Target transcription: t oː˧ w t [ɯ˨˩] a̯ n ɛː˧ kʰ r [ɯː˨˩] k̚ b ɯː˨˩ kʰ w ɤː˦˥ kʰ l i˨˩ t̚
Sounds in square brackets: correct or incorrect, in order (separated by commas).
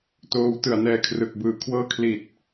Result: correct, incorrect